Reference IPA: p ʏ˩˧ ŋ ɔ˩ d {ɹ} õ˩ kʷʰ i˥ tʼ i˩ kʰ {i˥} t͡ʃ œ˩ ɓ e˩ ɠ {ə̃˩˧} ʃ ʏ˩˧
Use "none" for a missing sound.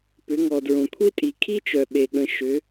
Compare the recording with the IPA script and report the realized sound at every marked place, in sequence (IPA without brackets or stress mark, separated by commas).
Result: ɹ, i˥, ə̃˩˧